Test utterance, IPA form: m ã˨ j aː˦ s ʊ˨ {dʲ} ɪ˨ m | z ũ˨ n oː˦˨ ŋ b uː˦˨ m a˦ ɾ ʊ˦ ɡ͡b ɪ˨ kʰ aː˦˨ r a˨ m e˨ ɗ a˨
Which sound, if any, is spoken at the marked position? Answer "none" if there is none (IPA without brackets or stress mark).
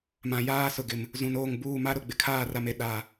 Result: ɡ